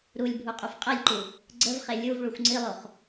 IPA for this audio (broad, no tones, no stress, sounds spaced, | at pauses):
ɾ u lʲ bʱ u qʼ u f qʼ ɛ lʲ ǃ u | ɡ͡ǀ ə v χ e lʲ u v ɭ u xʷ ŋ͡ǀ i lˠ o χ